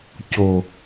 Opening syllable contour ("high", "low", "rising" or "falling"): low